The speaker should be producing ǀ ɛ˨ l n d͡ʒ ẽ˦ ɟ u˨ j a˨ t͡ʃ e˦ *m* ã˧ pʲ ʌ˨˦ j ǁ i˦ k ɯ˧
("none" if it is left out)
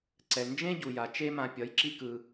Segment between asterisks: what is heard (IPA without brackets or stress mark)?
m